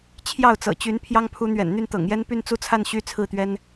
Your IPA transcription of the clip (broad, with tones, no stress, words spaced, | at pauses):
t͡ɕʰjɑ˥˩ʊ̯t͡sɤ̰˨˩t͡ɕy˧˥n pʰjɑ˥ŋpʰu˧˥n̪ɥɛ̰˨˩n n̪y˥˩nt̪ɤ̰˨˩ŋjɛ˥n py˥˩nt͡su˥t͡sʰa˥˩n ɕy˥t͡sʰɹ̩˥˩t̪ɥɛ˥n